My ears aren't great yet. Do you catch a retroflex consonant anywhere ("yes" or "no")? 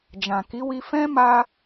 no